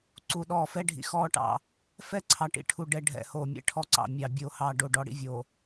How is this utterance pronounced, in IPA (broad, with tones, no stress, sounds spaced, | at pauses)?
ǀ u˨ ɗ ɔː˨ f ɛ˦ ɖʱ ḭ˨ x ɔː˦ ʈ ɑ̰˨ | f ɛ˦ ǀʰ ɑ˨ ʈ ḭ˨ ʈʰ u˨ ɖ ɛ˨ ɖʱ ɛ̰˨ h oː˨ mʲ ɛ̰˦ ʈʰ ɔ˦ ǀ ɑ̰˨ mʲ ɑ˨ bʲ oː˨ h ɑː˨ ɖ o˦˨ ɖ ɔ˦ ɽ ḭ˦ vʲ oː˨